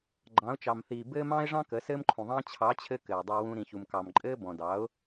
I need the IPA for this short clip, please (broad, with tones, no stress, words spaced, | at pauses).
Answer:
ɡ͡ǃɑ̃˨˦ʊ̯t͡ʃɑ˨mθiː˨ bɘː˧ mɑ̃ː˦ɪ̯ʐɑ̃˦ kə˨˦sɘː˦mǃʰũ˨ðˤɑ̃ː˦ t͡ɕʰɑ˨˦t͡ɕʰɘ˧ kɘː˨ dˤɑ˧wũ˧ ɾĩ˨çu˨mkɑ˨m ǃʼɘː˦ bɔ̃˨dɑ˨˦ʊ̯